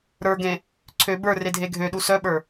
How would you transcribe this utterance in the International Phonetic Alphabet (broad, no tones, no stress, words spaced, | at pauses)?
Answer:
ɾə˞ɡẽ | ǀʰø bə˞re dʱeɡʱøɗu sœɓə˞